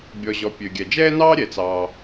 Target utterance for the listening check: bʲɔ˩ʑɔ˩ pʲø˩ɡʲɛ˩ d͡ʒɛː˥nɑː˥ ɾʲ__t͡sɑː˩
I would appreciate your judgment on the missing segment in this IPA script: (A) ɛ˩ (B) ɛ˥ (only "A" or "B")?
A